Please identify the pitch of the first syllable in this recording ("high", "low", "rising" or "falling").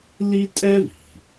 high